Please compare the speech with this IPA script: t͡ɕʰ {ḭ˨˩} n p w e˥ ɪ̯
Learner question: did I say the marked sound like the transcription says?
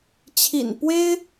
yes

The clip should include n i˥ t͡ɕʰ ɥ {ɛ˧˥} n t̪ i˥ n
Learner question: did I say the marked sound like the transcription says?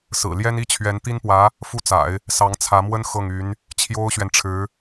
yes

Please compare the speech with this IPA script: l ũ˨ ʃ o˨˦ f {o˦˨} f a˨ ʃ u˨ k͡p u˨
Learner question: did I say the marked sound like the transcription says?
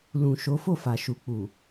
yes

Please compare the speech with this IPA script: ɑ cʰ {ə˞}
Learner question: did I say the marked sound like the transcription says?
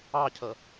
no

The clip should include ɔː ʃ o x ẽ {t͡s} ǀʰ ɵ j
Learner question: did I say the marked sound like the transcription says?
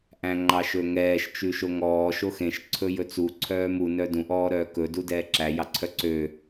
no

